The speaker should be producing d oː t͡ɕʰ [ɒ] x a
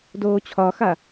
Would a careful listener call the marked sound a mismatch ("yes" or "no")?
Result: no